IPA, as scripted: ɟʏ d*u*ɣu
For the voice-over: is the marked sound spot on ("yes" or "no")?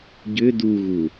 yes